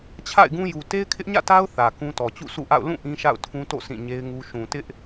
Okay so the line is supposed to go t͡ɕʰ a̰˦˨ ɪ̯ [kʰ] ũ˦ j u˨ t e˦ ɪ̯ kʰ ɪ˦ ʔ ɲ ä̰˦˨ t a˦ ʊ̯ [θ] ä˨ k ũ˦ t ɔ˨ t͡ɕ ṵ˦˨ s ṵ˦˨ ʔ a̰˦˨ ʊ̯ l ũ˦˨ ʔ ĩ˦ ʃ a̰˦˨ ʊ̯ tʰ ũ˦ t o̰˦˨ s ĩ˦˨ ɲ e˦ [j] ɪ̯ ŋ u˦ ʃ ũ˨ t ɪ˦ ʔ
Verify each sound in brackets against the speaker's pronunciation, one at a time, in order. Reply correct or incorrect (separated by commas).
incorrect, correct, incorrect